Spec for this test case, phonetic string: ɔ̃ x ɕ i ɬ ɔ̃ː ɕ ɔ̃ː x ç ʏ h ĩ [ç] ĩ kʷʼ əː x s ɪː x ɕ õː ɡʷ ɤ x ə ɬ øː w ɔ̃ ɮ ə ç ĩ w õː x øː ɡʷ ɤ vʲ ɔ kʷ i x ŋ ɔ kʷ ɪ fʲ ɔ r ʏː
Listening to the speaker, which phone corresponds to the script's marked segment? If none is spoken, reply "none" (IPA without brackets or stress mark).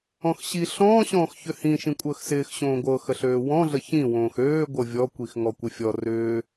ʃ